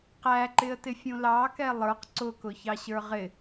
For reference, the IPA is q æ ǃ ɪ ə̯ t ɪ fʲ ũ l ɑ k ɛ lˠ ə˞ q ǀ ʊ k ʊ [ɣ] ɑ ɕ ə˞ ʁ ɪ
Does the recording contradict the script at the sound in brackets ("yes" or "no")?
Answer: yes